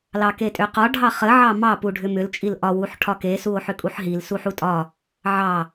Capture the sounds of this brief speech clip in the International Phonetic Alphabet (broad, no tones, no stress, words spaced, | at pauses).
lɑketʼʏqɒ ɖʱɑχə ʕɑmɑ puɖʱʏmʏl t͡ʃʼilʔɒ wuħʈʰɒke suo̯ħʏkʼuħɦil suħutʼɒ | ʕɑ